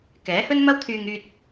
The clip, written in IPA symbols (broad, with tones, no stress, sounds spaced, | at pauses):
k ɛː˨˥ h ɵ˥ n m ɐ˥ w t̪ʰ yː˧ ŋ yː˧ t̚